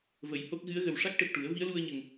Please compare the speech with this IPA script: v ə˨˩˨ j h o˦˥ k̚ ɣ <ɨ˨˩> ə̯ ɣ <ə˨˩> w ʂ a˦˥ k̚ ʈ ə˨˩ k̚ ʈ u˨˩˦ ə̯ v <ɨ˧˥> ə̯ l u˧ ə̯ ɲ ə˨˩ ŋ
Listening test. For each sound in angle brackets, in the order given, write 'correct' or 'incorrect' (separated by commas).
incorrect, correct, incorrect